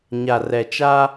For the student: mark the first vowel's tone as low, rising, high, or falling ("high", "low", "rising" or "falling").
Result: low